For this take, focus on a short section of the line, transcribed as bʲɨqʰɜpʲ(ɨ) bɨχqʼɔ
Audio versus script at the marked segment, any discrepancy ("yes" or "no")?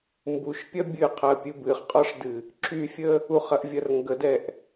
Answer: no